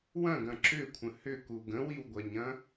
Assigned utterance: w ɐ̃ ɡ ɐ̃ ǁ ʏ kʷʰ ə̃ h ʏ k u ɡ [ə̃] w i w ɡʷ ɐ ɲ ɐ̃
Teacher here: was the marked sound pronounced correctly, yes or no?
yes